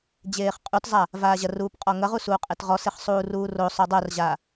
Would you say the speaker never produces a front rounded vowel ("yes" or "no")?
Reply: no